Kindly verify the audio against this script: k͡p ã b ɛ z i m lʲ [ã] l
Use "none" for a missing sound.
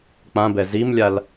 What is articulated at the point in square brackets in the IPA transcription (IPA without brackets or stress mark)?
a